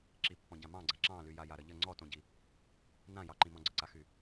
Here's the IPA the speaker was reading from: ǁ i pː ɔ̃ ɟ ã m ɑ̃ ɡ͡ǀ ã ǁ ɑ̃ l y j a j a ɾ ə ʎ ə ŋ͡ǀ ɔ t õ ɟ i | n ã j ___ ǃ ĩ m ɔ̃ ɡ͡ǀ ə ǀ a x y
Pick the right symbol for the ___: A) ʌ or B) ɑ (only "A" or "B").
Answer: B